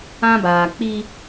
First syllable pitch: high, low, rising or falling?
high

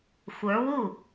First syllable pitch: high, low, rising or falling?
rising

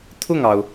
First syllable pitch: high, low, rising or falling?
falling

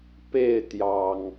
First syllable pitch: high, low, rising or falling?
falling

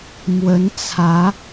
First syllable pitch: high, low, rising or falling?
rising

